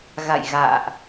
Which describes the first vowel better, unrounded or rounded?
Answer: unrounded